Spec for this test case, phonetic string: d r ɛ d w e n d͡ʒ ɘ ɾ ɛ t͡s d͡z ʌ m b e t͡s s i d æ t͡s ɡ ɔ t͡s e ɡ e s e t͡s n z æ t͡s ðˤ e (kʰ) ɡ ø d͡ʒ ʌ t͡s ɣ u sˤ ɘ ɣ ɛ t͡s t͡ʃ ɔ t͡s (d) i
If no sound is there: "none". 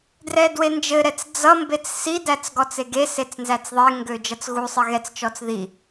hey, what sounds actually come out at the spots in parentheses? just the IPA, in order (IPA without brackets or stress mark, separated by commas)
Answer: ŋ, ð